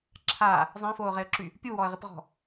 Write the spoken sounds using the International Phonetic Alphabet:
ǁʰ a | zˤ ẽ f oː ʁ e ə̯ ǁ y | pʲ u w ɔ ə̯ ʁ i p ʁ ɔ̤

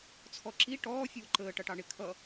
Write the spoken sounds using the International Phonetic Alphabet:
t͡sʰ ɔ ǁ i ʈ ɔː fʲ uː ǃ əː ʈ ʌ ʈ ɑ ɳ ɪ kʰ ʌ

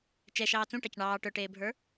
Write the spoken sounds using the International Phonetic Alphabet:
t͡ʃ ɛ ʃ ɑː t͡s ũ ʈ ɑ c ɳ ɑː ʈ œ ʈ eː bʱ ə˞

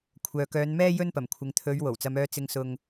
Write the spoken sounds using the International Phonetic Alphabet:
kʷʰ œː˨ k œː˨˧ n m ɛː˥ j ɵ˥ n p ɐ˨˩ m kʷʰ ɪ˨˧ ŋ t̪ʰ ɵ˨˧ ɥ w o˨˩ w t͡s ɐ˧ m œː˧ t͡s ɪ˧ ŋ s ʊ˧ ŋ

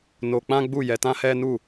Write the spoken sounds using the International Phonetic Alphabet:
n o˧ k͡p ã˦ ɡ͡b u˦˨ j ɛ˧ t ã˦ h ɛ˦ n u˦˨

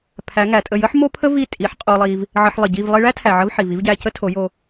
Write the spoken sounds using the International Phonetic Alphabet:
pʰ æ˨˦ ŋ æ˨ tʼ ə˦˨ j ə˦ ħ m o˦ pʰ ə˦ v i˦˨ tʼ i˨˦ ħ qʼ o˧ lˠ i˧ v | ʕ ə˧ ħ lˠ ə˨ ɟ i˦˨ v lˠ i˧ ɭ æ˦ tʰ æ˨ ʕ ə˧ v ħ i˨ v i˨˦ v ɟ æ˧ c ə˦ tʰ o˨˦ j o˧

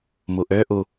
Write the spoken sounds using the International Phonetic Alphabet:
m u ʔ ø ʔ u

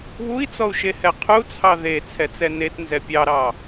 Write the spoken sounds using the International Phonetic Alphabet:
β u i̯ t͡s ɔ u̯ ʃ e h ɛ qʰ u t͡sʰ ɑ ð e t͡sʰ ɛ t͡s ɛ n e t n z ɛ pʲ ɑ ɾ ɑ

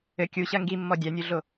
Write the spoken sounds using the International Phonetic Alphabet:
ɘ kʲ u ɕ ɐ ŋ ɡ i mː ɔ dʲ a nʲ u ɮ o

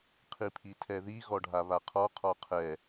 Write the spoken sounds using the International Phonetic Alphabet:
qʰ i pʰ i tʰ ɛ ð i ɣ ɔ ɖʱ a β a qʰ ɔ qʰ ɔ qʰ ɛ

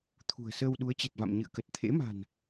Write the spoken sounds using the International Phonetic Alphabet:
t̪ʰ ṳ˨˩ ə̯ s əː˧ w ɗ u˨˦ ə̯ t͡ɕ e˨˩ t̚ v a̰˧˨ m ɲ ɨ̰˧˨ ə̯ k ə˨˩ t̚ t̪ʰ ḛ˧˥ m a̤˨˩ n

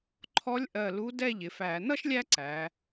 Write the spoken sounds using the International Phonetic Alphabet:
ǃʰ ɔ˧˥ lʲ ʔ ɜ˧˩ l u˧˥ d ɛ˥˧ ʎ ɪ˩˧ f æ˧˩˧ n ʌ˥ ʃ lʲ æ˥ ǀ æ˩˧

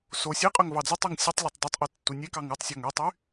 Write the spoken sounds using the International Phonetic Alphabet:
s o sʲ e qʼ ø ŋ v ɑ d͡z o tˤ e ŋ sʲ ɔ tˤ lʲ ɔ tˤ dˤ y tˤ ʔ ɯ tː u nʲ e k ɑ ŋ u tˤ sʲ ɔ ŋ ø tˤ y

